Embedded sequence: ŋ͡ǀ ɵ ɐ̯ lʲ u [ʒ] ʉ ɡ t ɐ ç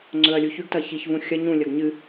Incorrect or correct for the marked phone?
incorrect: ç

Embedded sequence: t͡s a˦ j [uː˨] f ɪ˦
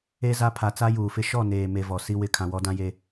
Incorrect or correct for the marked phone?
correct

